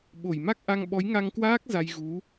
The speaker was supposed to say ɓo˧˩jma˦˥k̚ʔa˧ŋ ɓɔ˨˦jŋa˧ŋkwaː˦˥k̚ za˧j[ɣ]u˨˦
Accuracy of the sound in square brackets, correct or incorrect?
correct